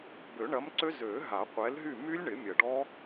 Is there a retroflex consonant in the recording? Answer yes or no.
yes